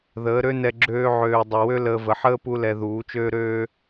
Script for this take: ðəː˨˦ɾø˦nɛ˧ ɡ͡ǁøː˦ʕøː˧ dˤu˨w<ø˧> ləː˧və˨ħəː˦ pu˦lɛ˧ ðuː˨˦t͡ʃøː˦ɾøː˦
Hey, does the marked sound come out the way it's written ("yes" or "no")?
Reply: no